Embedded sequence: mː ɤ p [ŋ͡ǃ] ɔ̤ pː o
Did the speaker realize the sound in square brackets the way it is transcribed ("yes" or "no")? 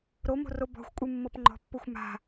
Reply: yes